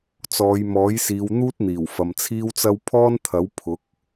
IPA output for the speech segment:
t͡s ɔː˨˧ j m ɔː˨˥ j s iː˨˧ w n̪ uː˥ t̚ n̪ iː˨˩ w f ɐ˨ m t͡sʰ iː˥ w t͡s ɐ˥ w pʰ ɔː˥ n t̪ʰ ɐ˨˥ w pʰ ʊ˨˥ k̚

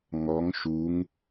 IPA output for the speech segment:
ŋ ɔ ŋ ʃ u ŋ

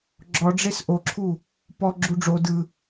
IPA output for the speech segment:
ɡ͡ǁ ɔ ɖ͡ʐ e s ʔ o ǁʰ u | p ɔ ɡ͡ǁ u ɖ͡ʐ o d ɯ

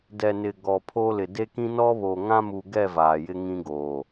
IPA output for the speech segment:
d ɛ˨ n ɪ˨ ɡ ɔ˨ pʰ o˦ l ɪ˨ d e˦ k ĩ˦ n ɔ˦ β o˨ ŋ ã˦ m u˨ ɡ ɛ˦˨ v aː˨ j ɪ˦ ŋ ĩ˦ ɡ oː˨

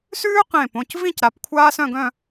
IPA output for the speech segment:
s ʉː˥ q ẽ˧˩ p õ˩˧˩ c v ĩ˥˧ c ɾ a˩˧˩ p kʷʰ aː˥ s œ̃˥˧ ɡ œ̃˥˧

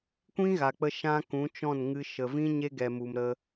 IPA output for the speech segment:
kʷ ĩ˦ ɣ a˨ k͡p ə˧ ʃ ã˦ k ũ˨˦ t͡ʃ ɔ̃˦˨ n ŋ ɨ˧ ʃ ə˨ v ĩ˦ ɲ e˦ ɡ ɛ˨ m u˨ m ɾ ə˧

